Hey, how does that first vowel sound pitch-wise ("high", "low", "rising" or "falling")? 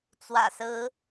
low